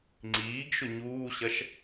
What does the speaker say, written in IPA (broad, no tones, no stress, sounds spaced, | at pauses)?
ŋ͡ǀ iː ɡ ʃ ʊ ɲ uː ɕ ɐ ʃ